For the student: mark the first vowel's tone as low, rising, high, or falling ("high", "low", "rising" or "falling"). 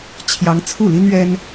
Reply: rising